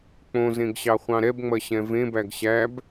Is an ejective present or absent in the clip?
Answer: absent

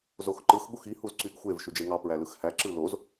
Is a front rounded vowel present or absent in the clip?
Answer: present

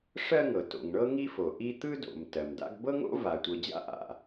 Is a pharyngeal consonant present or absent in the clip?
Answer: absent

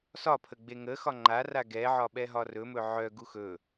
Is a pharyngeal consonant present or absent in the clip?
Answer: present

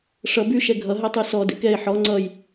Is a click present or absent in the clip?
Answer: present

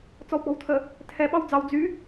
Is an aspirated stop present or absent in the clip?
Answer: present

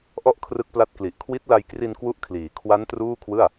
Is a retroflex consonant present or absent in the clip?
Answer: absent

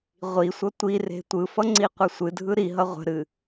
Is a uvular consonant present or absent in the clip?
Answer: present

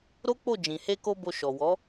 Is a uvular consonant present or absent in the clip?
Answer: absent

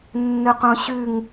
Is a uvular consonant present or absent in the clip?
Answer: present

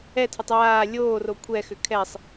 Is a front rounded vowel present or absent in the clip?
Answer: present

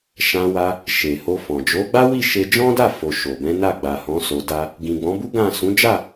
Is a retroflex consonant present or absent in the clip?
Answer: absent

